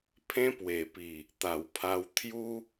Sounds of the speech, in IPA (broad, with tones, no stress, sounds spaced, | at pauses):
pʰ ẽ˦ p w e˨˩ p i˨˩ | t̪ a˨˩ w pʰ a˧ w t̪ʰ j u˦